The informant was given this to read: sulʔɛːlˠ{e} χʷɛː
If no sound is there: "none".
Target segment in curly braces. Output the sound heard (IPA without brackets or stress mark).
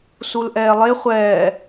e